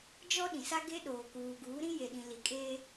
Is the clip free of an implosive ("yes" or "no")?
no